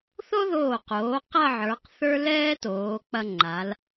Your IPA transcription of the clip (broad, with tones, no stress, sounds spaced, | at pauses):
θ o˥ ð oː˧˩ q oː˩˧ q ɐ˥˧ ʕ ə˞˩˧ q θ ə˞˥ l ɛː˥ t oː˩˧ k͡p ɐ˧ ŋ͡ǃ a˩˧ l